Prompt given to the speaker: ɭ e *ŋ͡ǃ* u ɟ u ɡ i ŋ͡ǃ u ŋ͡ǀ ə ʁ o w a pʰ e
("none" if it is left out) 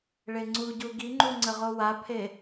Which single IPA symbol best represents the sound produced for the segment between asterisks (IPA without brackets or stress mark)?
ŋ͡ǀ